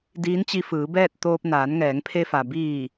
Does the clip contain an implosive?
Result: no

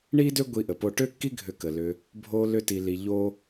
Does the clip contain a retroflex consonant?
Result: yes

